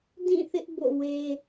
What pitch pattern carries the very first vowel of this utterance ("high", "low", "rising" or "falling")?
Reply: falling